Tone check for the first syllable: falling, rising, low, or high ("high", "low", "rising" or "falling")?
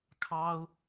high